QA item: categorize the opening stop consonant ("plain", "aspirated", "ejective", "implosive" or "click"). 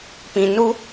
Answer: plain